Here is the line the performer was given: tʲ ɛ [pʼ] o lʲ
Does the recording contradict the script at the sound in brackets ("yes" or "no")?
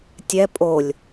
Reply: no